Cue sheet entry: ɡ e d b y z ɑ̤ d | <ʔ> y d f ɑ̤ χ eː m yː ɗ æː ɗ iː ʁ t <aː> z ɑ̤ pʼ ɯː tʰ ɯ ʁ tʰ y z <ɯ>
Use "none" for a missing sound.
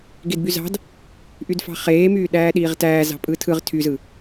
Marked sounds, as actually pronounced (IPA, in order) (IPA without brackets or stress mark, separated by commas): ʔ, æː, ɯ